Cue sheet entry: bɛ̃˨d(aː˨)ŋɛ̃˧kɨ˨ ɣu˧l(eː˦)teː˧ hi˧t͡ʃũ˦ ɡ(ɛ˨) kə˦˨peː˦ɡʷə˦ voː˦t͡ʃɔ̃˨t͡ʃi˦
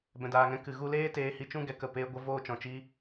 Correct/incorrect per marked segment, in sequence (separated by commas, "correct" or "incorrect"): correct, correct, correct